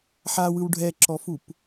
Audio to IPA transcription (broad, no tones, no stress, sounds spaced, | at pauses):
ħ a w ɯ w ɖʱ ɛ ǁ ɔ f u p